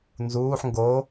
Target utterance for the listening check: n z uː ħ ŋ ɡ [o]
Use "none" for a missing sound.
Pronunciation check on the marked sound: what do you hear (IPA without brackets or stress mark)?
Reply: o